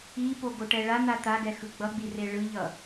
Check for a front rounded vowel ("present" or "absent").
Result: absent